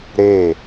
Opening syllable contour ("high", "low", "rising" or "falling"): falling